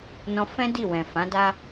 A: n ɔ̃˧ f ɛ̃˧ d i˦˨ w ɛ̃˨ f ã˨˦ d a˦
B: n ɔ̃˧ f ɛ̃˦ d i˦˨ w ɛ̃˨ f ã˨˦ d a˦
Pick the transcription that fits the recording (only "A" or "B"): B